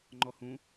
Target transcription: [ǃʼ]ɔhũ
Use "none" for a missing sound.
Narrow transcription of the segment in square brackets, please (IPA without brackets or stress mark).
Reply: ŋ͡ǃ